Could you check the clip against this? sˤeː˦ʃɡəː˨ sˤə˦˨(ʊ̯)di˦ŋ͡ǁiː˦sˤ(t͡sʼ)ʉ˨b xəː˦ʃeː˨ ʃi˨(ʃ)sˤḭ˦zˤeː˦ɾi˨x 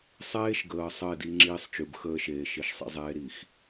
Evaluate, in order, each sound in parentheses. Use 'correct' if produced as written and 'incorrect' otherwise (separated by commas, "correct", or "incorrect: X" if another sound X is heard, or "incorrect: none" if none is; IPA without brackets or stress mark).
incorrect: ɪ̯, incorrect: t͡ʃ, correct